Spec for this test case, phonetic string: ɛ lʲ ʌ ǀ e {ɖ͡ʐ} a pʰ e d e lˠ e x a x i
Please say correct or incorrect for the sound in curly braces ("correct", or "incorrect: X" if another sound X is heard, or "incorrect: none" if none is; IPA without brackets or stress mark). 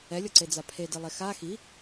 incorrect: d͡z